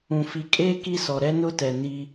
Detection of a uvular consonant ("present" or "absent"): absent